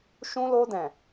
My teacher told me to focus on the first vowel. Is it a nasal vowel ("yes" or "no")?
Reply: yes